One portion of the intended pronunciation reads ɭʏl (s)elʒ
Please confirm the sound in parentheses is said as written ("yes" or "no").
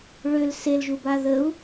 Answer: yes